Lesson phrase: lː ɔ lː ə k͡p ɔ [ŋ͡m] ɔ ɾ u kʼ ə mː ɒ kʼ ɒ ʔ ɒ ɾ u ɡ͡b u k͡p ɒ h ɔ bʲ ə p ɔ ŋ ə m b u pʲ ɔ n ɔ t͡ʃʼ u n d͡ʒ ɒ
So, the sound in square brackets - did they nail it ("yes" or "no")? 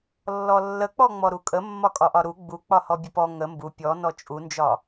yes